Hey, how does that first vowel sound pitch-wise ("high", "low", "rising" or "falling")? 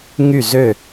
falling